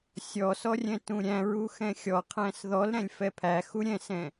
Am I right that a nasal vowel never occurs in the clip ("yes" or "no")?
no